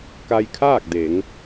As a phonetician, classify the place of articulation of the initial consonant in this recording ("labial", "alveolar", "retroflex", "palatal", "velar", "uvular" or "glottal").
velar